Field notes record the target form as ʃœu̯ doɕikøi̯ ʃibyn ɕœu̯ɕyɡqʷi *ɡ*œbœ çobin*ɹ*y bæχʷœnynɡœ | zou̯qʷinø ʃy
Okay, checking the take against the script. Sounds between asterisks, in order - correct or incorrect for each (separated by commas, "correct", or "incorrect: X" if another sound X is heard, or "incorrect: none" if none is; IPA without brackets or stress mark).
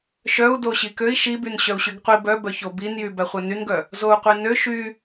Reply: incorrect: b, incorrect: j